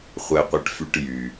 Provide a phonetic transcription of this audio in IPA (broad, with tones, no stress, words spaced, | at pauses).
χʷɛ˨qʷɛ˨ʈfy˨ʈ jy˩